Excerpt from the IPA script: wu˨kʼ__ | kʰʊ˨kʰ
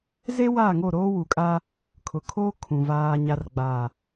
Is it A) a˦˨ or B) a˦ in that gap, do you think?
B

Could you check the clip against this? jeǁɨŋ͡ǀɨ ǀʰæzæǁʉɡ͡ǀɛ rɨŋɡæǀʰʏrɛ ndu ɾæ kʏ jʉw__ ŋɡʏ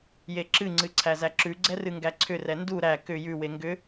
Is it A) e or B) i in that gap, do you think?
A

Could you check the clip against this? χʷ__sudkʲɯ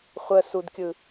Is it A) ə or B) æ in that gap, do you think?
A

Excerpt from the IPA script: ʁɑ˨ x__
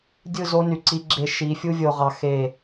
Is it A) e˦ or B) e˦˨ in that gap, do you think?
B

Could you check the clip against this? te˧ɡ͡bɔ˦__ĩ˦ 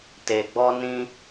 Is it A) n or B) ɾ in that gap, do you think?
A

